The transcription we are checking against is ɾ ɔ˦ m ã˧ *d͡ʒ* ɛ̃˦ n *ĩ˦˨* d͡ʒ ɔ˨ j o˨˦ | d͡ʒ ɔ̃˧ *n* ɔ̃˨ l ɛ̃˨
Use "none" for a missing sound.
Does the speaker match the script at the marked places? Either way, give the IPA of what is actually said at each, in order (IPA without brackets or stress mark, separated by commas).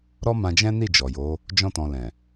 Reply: d͡ʒ, i˦˨, t